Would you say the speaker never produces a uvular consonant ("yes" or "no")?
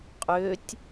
no